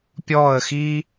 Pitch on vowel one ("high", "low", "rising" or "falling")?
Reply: falling